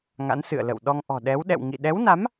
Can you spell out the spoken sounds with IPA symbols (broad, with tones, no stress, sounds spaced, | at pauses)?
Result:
ŋ a̰˧˥ n s ɨ̰˧˨ ə̯ l ə̰˧˨ w ɗ ɔ˧ ŋ ʔ ɔ̤˨˩ ɗ ɛ˨˦ w ɗ ɛ̰˧˨ w ŋ ḭ˧˨ ɗ ɛ˨˦ w n a˨˦ m